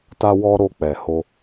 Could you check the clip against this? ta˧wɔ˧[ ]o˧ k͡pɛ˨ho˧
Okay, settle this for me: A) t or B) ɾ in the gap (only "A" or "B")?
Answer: B